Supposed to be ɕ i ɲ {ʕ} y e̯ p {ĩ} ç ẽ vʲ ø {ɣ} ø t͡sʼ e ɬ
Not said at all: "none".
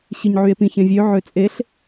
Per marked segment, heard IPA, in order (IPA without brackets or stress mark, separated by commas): ʕ, ĩ, ʕ